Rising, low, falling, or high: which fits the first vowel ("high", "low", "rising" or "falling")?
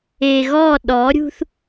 low